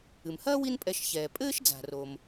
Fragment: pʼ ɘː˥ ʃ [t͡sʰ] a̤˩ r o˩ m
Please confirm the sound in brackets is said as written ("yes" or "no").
no